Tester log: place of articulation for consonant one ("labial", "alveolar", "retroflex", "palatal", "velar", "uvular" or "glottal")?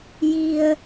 palatal